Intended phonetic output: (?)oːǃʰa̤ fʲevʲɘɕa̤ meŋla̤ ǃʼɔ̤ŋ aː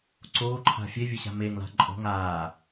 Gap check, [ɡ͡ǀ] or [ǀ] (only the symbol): ǀ